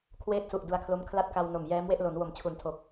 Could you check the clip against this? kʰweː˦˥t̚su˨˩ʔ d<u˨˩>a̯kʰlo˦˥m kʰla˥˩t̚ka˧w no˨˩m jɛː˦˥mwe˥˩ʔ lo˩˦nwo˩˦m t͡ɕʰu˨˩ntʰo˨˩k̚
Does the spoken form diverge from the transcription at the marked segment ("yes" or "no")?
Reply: yes